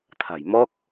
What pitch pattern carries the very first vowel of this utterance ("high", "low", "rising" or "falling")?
low